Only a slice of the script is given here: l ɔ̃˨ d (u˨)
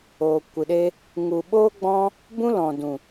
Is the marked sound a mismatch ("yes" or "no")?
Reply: yes